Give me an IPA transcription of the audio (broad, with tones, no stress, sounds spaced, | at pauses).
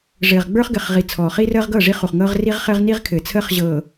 ʐ ɘː˨ ʁ ɡ͡b ə˞˦ χ ɡ ɘ˨ χ ʁ i˨ t͡sʰ ɔː˨ χ i˦ r əː˦ ʁ ɡ ɤ˦˨ ʐ i˦ χ u˨ χ ŋ ɤː˦ ʁ r i˦ ʁ χ ɘː˦ ʁ n i˦ ʁ kʰ ɘ˨ t͡sʰ əː˦ χ ʑ ɤː˨